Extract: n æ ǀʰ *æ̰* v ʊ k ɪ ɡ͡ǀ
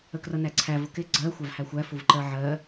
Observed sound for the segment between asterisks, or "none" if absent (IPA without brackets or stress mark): æ